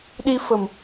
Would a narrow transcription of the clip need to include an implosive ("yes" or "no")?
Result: yes